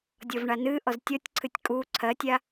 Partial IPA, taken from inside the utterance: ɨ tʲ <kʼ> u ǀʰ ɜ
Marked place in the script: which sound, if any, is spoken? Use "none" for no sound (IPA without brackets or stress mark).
kʼ